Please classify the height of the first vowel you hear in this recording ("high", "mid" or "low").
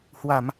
low